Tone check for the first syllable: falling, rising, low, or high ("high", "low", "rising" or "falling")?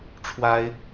high